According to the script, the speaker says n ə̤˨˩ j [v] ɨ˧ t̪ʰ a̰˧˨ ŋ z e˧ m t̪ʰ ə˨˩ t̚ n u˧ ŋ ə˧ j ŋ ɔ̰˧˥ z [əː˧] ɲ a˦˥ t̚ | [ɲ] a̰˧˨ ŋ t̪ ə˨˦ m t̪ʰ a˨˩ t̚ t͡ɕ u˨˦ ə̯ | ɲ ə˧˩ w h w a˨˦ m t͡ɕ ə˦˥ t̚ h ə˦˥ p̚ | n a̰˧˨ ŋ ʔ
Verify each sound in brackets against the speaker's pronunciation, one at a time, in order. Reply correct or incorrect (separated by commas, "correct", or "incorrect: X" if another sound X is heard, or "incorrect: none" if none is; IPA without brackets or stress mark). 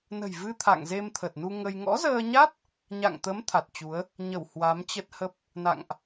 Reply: correct, correct, correct